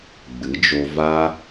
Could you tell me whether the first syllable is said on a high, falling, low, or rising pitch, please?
rising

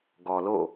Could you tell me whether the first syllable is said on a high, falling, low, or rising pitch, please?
low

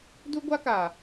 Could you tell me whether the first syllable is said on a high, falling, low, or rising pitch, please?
high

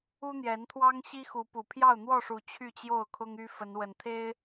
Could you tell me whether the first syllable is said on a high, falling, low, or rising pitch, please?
high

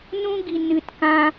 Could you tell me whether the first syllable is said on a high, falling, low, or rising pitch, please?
high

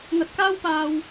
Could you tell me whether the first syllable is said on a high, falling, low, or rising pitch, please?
low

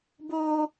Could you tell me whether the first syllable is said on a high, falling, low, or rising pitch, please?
high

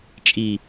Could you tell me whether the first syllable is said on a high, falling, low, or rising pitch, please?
low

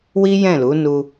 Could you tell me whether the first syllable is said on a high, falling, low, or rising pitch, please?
high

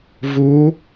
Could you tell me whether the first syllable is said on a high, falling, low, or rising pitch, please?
rising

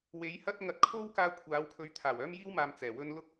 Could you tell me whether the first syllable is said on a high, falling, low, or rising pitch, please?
rising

